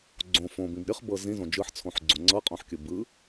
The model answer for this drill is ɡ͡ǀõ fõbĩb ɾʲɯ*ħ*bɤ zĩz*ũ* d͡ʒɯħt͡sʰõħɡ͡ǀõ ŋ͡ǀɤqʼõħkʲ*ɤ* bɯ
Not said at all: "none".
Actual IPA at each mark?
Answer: χ, õ, ɯ

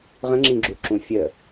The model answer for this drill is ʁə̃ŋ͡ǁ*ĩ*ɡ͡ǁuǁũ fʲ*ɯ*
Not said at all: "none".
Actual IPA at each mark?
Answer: ĩ, ə

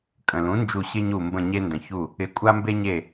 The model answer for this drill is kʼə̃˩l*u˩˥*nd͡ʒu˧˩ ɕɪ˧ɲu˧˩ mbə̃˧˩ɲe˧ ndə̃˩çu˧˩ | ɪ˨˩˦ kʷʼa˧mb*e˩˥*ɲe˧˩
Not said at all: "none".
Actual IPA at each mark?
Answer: ũ˩˥, e˧

